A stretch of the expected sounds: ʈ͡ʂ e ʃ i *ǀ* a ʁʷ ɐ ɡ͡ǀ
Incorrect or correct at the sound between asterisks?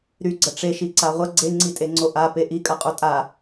correct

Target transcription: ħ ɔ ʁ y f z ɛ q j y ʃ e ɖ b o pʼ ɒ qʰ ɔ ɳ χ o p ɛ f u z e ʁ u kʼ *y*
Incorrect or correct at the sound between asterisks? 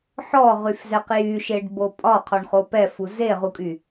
correct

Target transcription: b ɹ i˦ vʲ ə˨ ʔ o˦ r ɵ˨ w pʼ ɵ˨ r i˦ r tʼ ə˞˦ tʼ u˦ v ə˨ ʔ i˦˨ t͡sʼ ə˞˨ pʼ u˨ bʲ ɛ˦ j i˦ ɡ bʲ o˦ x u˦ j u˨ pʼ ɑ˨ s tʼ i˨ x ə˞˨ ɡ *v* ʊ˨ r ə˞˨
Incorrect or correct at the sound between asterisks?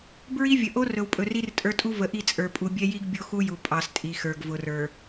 correct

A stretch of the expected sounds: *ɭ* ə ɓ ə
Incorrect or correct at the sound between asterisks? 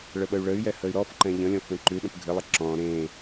correct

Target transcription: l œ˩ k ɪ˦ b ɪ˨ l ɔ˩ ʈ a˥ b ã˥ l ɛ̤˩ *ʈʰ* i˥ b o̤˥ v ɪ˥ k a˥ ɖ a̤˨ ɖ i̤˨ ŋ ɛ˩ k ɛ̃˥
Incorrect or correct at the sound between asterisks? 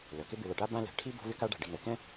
correct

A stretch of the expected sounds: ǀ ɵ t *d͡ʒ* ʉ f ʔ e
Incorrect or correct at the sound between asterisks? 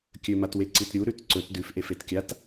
incorrect: d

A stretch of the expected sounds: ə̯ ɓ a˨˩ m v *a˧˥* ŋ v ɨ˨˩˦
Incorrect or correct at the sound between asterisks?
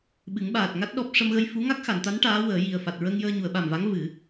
correct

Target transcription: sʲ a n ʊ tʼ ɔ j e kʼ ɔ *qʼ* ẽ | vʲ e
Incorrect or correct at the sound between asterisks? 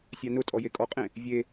correct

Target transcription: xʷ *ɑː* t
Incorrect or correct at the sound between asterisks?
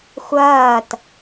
incorrect: ɐː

